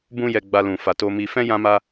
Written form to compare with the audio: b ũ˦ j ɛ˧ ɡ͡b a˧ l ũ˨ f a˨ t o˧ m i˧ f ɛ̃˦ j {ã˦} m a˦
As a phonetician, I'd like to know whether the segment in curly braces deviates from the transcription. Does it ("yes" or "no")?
no